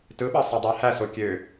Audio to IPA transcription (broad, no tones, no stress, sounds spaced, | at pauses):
t ɯ ɓ ɑ sˤ ø dˤ æ h æ s o kʲ ø